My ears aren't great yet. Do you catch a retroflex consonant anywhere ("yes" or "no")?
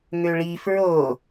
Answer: yes